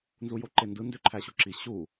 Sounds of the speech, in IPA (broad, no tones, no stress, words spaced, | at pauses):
nzujoǃendɯ ndøǃʰæɕuǁi ɕu